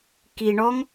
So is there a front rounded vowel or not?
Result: no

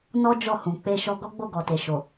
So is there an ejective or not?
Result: no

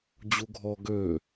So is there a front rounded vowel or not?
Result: yes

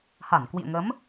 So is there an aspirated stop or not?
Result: no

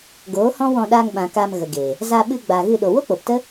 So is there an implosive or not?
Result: yes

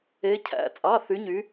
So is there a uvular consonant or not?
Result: no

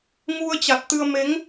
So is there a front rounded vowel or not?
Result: no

